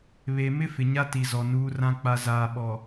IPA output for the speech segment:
βe˨mɪ˦ fɪ˨ɲa˦ti˨zɔ˨ nuː˦rã˦ k͡pa˨zaː˨ ɓɔ˨

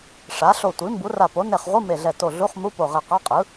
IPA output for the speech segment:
ʂa˩˥ ɬo˧˩tʷi˩˥ mbu˩˥ra˧˩po˩˥ ne˧˩χʁʷɯ˧˥˧ me˧˩ɮɛ˧˩to˧˩ɮu˧˥˧χ mu˧˥˧po˧˩ʁe˧˩qa˧˥˧ qʼɯ˩˥

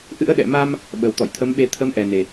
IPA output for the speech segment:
ʔɨ̰˧˥ə̯ ɗɛ̰˧˨ma˧m | ɓə˨˩wt̪ɔ̰˧˨j t̪ʰə˨˦mɓe˧ t̪ʰə˨˦mʔɛ˨˩ne˨˩

